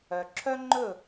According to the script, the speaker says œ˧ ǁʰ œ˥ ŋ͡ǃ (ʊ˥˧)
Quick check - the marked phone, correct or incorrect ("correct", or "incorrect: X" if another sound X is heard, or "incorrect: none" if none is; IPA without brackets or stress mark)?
incorrect: ɵ˥˧